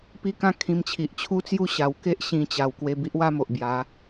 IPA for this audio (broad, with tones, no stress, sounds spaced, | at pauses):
p i˦ k ã˥˧ kʰ ĩ˧ m t͡ɕʰ i˨ ʔ t͡ɕʰ u˥˧ t͡s j u˦ ɕ a˨˩ w k e˦ ʔ ɕ ĩ˧ t͡ɕ a˨˩ w k w e˧ b i˦ ʔ w a˦ m o˨ ʔ b j a˨˦